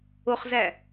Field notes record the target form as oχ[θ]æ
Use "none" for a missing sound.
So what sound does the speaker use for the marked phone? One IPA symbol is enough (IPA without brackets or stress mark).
z